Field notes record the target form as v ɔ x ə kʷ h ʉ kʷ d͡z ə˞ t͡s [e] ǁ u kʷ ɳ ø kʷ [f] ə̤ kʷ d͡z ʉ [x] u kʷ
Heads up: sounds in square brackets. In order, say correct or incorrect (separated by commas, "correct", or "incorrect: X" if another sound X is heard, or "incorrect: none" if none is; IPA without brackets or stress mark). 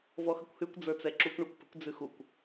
incorrect: ɛ, incorrect: p, correct